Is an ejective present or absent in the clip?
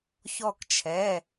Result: absent